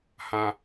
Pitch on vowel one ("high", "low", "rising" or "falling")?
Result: low